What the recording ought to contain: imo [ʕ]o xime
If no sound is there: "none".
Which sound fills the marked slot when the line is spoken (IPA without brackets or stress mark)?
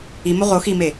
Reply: ʁ